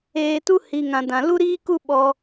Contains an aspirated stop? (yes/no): no